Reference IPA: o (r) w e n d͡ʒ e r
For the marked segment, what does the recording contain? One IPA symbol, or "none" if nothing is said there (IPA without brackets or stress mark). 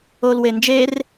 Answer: l